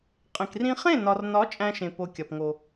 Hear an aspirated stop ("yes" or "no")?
no